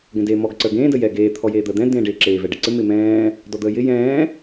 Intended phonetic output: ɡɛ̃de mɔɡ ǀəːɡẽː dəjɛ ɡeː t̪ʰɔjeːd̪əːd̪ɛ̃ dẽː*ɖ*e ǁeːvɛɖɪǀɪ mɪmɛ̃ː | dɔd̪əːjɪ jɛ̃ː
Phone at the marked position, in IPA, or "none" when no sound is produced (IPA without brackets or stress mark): ɖ